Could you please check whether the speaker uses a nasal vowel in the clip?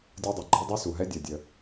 no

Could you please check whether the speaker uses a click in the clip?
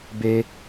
no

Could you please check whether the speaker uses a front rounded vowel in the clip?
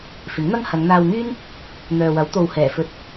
yes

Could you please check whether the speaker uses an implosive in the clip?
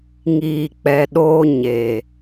yes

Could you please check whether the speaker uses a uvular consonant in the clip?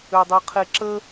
yes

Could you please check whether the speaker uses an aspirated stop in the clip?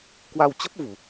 no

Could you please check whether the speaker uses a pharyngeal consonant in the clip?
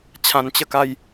no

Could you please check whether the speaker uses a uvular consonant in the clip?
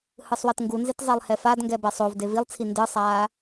no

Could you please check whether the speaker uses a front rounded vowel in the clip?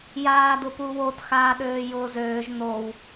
yes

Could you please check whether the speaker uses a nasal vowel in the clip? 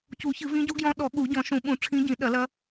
yes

